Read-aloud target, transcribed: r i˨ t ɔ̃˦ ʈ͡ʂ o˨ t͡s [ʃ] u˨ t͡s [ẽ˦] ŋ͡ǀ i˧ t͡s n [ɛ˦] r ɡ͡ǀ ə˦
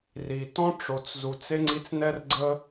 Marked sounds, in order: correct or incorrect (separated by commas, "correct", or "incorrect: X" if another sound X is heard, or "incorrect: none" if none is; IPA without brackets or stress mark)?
incorrect: z, incorrect: e˦, correct